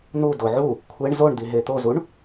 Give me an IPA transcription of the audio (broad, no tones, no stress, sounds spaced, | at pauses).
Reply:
n u d o ʕ u | kʷʰ e ɳ z o ɳ d̪ i ɦ e t̪ o z u ɳ